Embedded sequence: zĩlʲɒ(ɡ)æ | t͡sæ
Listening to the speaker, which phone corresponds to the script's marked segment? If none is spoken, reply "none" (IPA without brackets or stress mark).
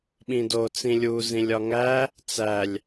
ŋ